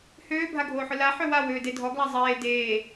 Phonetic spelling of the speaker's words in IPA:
høːbʱaɡʱoːħʊ la ħøwa wøːdedʱɔɡla zˤeː deː

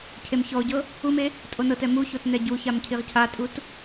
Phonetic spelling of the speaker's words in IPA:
cʰemçɔʊ̯ɟɤ | ume | tʼonɤtɛ muçot nɛɟuçam cʰiʁcʰatʼut

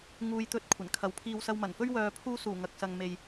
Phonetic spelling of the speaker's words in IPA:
ŋuː˨jt̪ɵ˨˥t̚ kʷʰɐ˨˩nkʰɐ˨˥wpʰiː˧w sɐ˧wmɐ˨˩nfɵ˥ɥ wœː˨pʰuː˧ suː˨˩ŋɐ˨k̚sɐ˨ŋ me˨j

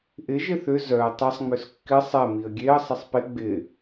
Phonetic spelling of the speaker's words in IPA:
ʔɪ ʒɪθʏ zœə̯ tˤɐsˤŋ͡møs kːɪ sˤɛ miə̯ɡʲeə̯ sˤɐsˤpɪ ɡ͡bɪ

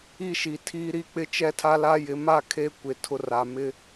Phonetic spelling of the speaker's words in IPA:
i˦ʃi˨tʰiː˦ɾi˦ k͡pɪ˦ t͡ʃɛ˦tʰa˦la˦jɪ˨˦ ma˦ kʰe˦ kʷɪ˨tʰʊ˦ra˨ mɪ˦

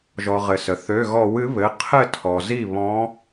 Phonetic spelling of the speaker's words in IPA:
ʒɔ˩ ʁɘ˩sə˩ θø˩˧˩ɣɔ˧˩˧w ɨ˩˥βɘ˩˧˩ qʰɘ˥˩tʰɔ˩ zi˥˩ βɔ̃˧˥

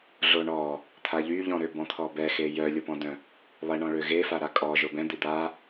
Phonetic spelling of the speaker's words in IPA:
ɮoɳɔ | t̪ʰaʎyʎɔ̃ɾø bɔ̃t̪ʰɔbɛxe jœlʲopɔ̃dœ̃ | lˠeɳɔ̃ɭø ɣefa ɾakʼɔ ʒobɛ̃d̪i d̪a

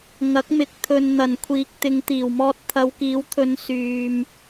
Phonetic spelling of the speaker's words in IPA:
ŋɐ˨˥k̚mɪ˨˥k̚ t̪ʰɵ˧n n̪ɐ˨˩nkʷʰiː˨k̚ t̪ɪ˨˧ŋt̪iː˨˩wmɔː˧t̚ t̪ʰɐ˨˧wkiː˨˥wt̪ʰɵ˨˧n syː˧m

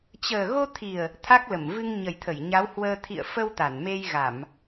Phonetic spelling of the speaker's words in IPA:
t͡ɕəː˨˩ɣo˧t̪ʰi˨˩ə̯ | t̪ʰa˦˥k̚lə˧˩mvɨ˧ŋ ɲə˨˩jt̪ʰə˧˩j ɲa˨˦whwəː˧ t̪ʰḭ˧˨ə̯ fə˧w t̪a˧˩nme˧jɣa˧˩˨m

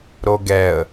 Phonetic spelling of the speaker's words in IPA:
ɾoɡɛə̯

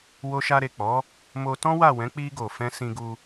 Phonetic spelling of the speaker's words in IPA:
wo˧ʃa˧ɾe˨k͡pɔ˨˦ | mo˧tɔ̃˦wa˦˨ wɛ̃˨˦k͡pi˧ɡo˨fɛ̃˧ sĩ˧ɡu˧

